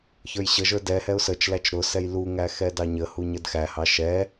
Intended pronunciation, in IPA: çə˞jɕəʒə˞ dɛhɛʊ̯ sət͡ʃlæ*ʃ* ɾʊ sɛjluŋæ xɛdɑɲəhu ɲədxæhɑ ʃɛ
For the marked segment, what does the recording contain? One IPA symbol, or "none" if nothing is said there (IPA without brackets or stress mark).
t͡ʃ